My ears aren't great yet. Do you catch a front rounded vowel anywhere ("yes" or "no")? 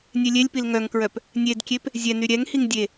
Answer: yes